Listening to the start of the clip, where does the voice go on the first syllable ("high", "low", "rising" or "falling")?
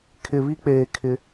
low